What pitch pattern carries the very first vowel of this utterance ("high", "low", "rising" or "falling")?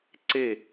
falling